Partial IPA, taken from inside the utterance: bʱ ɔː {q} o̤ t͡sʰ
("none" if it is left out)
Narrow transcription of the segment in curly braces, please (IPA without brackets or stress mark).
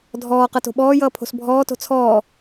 t